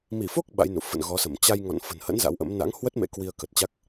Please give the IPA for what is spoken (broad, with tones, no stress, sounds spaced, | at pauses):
m i˧˩ f o˦˥ k̚ ɓ a̰˧˥ j n ṵ˧˨ f ə̰˧˨ n ɣ ɔ˨˦ s ə˧˩ m t͡ɕ a˧ j ŋ ɔ̰˧˨ n f ə̤˨˩ n h ə̰˧˥ n z a̰˧˥ w ʔ ə̰˧˥ m n a̰˧˥ ŋ h w ə˦˥ t̚ m ḛ˧˥ k w i˧ ə̯ k ə˨˩ t̚ t͡ɕ a˦˥ k̚